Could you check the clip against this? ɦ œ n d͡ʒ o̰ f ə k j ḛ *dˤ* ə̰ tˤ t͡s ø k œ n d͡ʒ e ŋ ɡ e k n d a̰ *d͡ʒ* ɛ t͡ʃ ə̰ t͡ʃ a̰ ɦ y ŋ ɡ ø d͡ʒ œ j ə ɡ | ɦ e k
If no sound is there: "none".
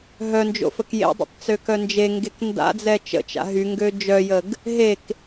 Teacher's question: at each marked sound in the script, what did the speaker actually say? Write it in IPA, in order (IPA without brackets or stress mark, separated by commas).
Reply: dˤ, d͡z